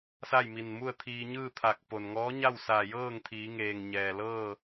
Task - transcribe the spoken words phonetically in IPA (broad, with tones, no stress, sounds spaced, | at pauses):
s a˥˨ j m i˧˩ n m u˥˨ ə̯ t̪ʰ iː˧ ɲ ɯː˥˨ t̪ʰ a˧˩ k̚ p o˩ n ŋ ɔː˧˥ ɲ a˥˨ w s aː˧˩ j ɤː˥˨ ŋ t̪ʰ iː˩˧ ŋ eː˩ ŋ ɲ ɛː˩ l ɤː˥˨